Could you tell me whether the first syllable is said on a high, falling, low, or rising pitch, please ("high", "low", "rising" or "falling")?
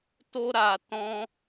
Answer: high